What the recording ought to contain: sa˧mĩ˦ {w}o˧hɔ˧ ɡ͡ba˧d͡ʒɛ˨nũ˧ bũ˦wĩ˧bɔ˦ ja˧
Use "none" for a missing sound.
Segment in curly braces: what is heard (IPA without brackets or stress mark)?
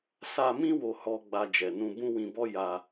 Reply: w